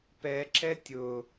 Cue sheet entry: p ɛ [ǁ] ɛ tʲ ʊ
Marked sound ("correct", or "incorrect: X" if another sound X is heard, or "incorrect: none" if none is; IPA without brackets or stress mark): correct